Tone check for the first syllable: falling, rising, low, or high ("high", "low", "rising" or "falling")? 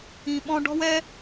low